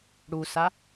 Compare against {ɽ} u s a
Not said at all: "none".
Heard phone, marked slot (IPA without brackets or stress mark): ɽ